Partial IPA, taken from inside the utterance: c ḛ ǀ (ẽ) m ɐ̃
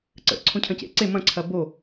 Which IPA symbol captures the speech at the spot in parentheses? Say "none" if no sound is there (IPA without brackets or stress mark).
e